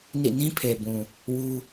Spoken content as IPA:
n ḭ˦˨ n ĩ˦ pʰ e˨ b ũ˨ | w u˦

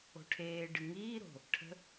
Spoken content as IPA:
o̤ ʈʰ eː ɖ ɨ ŋ iː ɾ o̤ | ʈʰ ə̤

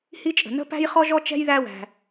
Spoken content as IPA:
h i˥ t͡ʃʼ ə̤˩ n ə̤˥ p æ̤˥ j χ ɔ˥ ʒ ɔ˥ t͡ʃ ɛ̤˥ j ð æ˥ w æ̤˩

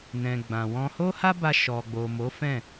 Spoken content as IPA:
n ɛ̃˨ ɡ͡b ã˨ w ɔ̃˧ h o˦ h a˦ b a˧ ʃ ɔ˨ ɡ͡b o˨ m o˨˦ f ɛ̃˦˨

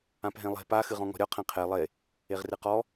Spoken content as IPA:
ã p ɦ ẽ lˠ e̤ p a x ɨ ʁ ɔ̃ ŋ ɔ̤ ɾʲ ɔ qʰ ɛ̃ qʰ e lˠ e | e ʁ r ɨ q ɔ

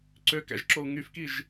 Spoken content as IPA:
ǀ ø k æ̰ ʒ ǁ o u̯ ŋ y f k i ʒ

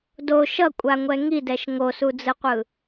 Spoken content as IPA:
d o ʃ ʌ kʷʼ a ŋʷ ɛ ŋ i d ɛ ʃ ŋ o s u d͡z ɯ qʷ ɯ

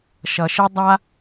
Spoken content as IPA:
ʃ ʌ˩ ʃ i˥ dˤ a˥

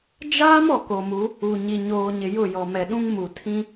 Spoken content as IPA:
d͡ʒ aː˦ m ɔ˨ k o˨ m u˨˦ | u˨ ɲ i˨ ɲ oː˨ ɲ ɪ˨ j ʊ˦˨ j ɔ˨ m ɛ˨ ɗ ũ˦ ŋ m u˨ tʰ ĩ˦

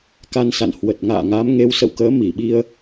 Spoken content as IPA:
k a˧ n s a̰˧˨ n h w ə˨˩ t̚ ŋ a̰ː˧˨ ŋ a˨˦ m ŋ e˨˦ w s ə̰˧˨ w k əː˨˦ m i˧˩ ɓ i˧ ə̯

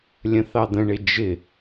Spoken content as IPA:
lʲ ə̃ θ ɑ d̪ ə̃ ɳ ɪ d͡ʒ ɪ

